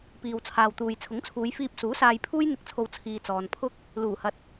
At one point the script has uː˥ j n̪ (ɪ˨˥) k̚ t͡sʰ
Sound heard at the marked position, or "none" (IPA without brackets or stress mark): ɪ˧